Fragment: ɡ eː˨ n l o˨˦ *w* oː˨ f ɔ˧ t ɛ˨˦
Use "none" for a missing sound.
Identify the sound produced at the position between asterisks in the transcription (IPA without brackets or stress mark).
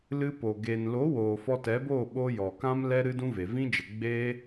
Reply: w